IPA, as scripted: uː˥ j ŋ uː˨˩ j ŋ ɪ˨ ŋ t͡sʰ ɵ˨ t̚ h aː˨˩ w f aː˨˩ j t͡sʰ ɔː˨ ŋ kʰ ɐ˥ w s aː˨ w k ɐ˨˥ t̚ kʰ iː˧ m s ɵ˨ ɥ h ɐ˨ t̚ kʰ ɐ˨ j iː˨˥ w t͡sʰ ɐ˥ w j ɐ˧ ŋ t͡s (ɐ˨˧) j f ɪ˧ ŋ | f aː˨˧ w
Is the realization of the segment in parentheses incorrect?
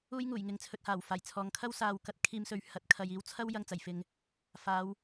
yes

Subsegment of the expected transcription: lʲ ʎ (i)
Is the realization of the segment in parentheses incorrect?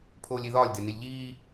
yes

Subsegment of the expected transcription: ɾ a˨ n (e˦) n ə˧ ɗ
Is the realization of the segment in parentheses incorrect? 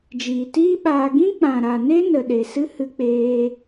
no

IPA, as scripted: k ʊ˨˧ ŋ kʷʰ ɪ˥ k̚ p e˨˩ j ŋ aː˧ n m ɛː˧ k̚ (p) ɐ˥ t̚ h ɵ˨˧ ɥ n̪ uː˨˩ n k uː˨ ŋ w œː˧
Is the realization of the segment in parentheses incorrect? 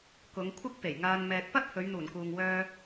no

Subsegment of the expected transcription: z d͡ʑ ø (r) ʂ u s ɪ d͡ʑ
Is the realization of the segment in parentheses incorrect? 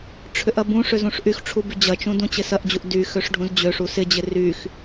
yes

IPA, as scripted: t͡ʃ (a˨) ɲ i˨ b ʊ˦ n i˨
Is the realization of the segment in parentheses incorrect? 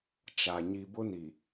no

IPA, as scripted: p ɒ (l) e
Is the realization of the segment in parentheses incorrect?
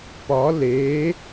no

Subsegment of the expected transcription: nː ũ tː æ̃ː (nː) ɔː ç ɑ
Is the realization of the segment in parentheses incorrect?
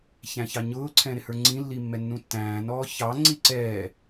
yes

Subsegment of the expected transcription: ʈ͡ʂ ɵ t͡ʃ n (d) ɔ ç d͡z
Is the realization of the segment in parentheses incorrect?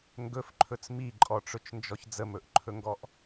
yes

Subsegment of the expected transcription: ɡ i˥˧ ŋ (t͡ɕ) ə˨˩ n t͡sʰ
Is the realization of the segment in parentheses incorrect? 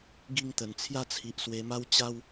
yes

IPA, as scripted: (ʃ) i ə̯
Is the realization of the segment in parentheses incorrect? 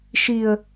no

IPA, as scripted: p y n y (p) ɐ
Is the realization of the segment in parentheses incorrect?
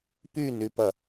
no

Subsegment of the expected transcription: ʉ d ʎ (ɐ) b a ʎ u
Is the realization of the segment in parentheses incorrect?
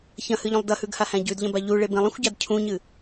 yes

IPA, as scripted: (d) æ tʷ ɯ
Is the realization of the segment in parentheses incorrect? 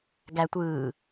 yes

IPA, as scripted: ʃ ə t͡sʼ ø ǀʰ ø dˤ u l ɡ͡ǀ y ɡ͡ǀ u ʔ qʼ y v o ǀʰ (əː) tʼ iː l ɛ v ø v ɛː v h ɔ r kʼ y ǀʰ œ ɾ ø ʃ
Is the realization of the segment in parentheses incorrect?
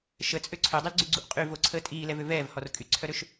no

